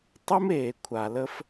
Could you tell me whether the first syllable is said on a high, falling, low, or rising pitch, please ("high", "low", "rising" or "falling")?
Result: high